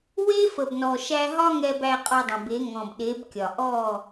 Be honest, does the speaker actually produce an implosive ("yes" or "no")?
yes